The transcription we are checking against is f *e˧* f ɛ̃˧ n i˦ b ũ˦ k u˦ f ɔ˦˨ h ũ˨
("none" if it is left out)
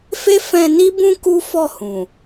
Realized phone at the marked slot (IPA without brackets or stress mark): e˦